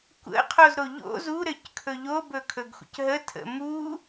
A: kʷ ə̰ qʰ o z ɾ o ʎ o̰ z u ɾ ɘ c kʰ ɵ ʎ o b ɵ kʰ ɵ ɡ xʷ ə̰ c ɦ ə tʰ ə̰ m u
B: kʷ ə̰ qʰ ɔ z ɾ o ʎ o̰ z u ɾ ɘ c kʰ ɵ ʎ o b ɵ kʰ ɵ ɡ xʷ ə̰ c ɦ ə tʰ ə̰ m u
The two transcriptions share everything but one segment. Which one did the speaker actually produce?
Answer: A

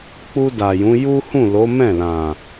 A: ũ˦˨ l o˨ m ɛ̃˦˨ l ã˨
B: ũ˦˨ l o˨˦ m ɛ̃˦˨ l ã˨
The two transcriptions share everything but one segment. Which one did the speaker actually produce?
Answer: B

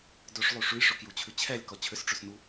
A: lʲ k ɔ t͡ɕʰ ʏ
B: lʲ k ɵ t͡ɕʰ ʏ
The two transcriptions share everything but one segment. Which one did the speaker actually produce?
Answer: A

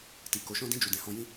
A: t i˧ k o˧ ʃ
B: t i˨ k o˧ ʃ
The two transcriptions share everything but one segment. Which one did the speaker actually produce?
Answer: B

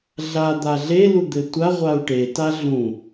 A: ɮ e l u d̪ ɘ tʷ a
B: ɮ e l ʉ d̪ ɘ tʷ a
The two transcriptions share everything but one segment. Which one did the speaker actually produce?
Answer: A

